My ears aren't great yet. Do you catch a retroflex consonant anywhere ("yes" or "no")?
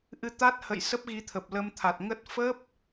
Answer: no